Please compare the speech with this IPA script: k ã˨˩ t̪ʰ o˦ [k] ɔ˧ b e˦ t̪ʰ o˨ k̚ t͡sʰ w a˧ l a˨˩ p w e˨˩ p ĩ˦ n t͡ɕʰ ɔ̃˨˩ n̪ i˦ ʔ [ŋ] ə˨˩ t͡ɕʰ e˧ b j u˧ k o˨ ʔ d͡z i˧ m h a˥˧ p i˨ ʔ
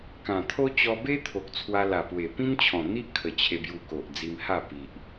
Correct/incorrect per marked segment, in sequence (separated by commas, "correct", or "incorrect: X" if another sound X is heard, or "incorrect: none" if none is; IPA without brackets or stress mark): incorrect: t͡ɕ, incorrect: kʰ